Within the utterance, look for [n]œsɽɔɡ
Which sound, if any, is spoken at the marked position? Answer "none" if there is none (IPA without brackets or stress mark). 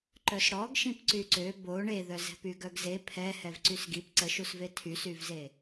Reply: ǃ